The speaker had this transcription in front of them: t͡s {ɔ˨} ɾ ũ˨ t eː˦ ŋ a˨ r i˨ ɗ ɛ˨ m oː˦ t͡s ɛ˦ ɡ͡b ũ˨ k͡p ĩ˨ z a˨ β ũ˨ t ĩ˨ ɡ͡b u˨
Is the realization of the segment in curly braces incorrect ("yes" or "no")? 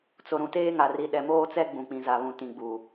yes